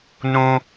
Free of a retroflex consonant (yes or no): yes